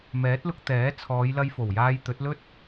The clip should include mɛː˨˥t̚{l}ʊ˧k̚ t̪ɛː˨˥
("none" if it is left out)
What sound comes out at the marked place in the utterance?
l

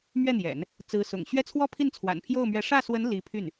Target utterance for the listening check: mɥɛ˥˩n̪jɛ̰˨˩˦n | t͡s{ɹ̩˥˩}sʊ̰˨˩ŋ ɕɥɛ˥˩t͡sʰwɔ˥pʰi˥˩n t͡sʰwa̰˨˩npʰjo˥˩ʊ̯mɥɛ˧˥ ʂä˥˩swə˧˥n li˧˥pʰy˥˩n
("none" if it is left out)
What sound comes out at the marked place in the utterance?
ɹ̩˧˥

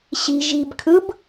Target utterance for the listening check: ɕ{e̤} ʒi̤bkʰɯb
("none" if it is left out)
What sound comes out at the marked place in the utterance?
i̤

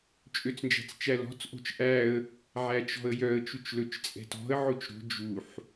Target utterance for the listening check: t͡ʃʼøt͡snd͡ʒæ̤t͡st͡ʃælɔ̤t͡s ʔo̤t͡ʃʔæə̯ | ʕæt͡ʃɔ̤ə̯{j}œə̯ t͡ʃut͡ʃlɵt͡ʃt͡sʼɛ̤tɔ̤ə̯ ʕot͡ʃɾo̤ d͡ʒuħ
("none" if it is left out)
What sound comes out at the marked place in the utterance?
j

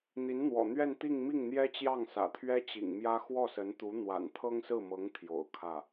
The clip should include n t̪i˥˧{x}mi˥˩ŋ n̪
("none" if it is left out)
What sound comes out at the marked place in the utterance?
ŋ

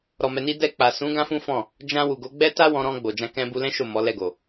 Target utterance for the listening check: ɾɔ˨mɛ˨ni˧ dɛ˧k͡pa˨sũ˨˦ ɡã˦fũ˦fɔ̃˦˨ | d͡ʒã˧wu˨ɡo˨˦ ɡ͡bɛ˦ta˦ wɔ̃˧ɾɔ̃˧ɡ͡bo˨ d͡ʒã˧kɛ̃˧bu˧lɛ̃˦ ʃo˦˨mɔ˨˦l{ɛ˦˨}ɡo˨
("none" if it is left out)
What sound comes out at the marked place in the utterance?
ɛ˦˨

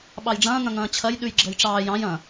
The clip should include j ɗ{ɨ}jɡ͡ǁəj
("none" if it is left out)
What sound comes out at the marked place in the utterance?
ʉ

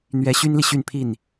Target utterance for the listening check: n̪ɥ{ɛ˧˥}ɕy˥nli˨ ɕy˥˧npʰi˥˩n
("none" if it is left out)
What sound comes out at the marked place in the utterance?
ɛ˧˥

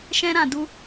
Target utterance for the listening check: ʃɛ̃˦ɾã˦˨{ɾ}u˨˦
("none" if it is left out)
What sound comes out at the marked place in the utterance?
d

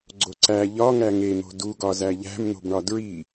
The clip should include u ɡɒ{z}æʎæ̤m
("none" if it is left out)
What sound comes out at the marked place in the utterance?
z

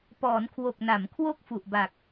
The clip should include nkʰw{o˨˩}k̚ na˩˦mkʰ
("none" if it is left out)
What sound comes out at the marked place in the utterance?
o˨˩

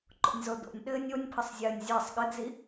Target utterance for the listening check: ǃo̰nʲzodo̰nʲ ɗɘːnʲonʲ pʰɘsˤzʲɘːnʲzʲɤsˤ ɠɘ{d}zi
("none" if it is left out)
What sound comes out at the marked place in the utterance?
d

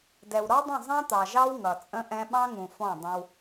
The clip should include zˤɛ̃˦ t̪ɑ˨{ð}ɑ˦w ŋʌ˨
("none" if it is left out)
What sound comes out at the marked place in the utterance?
ʒ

